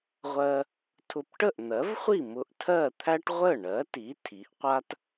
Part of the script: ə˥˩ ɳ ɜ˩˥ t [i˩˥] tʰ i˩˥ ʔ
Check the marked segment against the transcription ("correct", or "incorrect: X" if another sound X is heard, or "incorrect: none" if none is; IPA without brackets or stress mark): correct